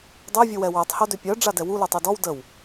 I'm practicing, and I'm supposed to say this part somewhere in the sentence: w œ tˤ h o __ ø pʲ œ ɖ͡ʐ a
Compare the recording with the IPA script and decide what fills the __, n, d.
d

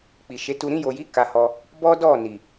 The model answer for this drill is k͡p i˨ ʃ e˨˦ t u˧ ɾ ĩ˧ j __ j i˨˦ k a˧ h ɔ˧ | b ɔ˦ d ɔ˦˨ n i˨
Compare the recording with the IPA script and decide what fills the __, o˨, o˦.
o˨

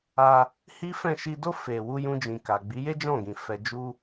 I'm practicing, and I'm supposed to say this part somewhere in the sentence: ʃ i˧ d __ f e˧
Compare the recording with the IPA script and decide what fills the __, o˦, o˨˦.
o˦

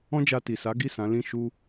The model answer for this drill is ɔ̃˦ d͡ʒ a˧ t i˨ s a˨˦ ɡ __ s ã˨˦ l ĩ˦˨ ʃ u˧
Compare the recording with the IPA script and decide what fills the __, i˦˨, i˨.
i˦˨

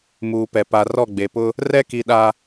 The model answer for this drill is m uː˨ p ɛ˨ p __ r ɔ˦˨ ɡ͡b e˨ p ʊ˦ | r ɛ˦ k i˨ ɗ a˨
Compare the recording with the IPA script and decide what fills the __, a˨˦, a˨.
a˨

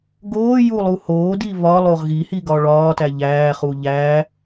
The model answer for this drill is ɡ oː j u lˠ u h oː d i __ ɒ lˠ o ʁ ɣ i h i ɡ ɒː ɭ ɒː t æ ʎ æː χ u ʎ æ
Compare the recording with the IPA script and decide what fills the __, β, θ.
β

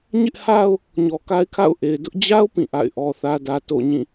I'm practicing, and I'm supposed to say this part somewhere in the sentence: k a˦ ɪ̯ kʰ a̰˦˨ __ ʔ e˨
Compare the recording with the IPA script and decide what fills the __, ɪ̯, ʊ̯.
ʊ̯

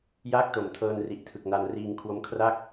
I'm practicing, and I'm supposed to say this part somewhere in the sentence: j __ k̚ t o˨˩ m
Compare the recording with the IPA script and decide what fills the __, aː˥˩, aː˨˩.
aː˥˩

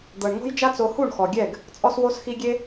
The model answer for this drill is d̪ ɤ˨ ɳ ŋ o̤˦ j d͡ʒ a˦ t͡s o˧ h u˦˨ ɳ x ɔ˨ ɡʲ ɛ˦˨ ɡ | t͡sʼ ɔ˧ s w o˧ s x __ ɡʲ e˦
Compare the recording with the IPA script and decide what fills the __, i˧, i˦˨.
i˧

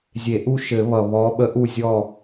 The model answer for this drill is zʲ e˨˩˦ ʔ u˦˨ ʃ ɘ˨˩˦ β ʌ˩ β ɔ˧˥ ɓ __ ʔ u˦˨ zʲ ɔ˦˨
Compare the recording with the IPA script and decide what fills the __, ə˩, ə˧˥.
ə˧˥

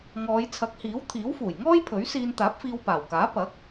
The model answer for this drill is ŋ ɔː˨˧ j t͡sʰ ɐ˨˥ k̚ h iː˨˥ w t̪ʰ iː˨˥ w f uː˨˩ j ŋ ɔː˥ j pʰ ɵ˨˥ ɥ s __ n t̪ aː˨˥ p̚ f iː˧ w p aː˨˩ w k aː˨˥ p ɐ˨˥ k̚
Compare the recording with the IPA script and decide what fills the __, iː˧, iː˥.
iː˧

